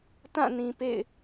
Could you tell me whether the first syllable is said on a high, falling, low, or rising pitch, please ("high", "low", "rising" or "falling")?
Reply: falling